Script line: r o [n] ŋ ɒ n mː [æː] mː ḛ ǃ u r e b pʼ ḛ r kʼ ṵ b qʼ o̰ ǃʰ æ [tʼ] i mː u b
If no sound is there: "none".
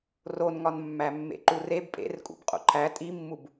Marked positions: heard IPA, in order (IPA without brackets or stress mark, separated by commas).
n, æ, tʼ